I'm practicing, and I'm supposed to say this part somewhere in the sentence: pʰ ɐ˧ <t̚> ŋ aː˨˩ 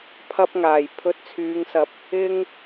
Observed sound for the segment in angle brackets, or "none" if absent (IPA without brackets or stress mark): p̚